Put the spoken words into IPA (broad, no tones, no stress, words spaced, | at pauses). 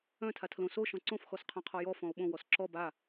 œ̃ tʰatʰlõ so ʃɔ̃ǀõf xɔsqʰɔ̃qʰɔjɔ fɔ̃o̯ɓõ wɔsǁɔ ba